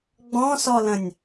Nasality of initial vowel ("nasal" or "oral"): nasal